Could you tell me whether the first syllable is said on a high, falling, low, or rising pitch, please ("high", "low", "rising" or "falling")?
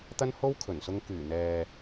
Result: high